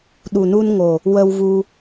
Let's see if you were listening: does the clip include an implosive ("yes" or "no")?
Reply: yes